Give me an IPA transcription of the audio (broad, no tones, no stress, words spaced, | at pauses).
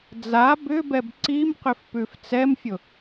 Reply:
d͡za bʏbɛb ǀimqʏf pʉft͡sɛmfʲʊ